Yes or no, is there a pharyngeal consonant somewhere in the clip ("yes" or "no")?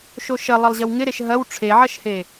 yes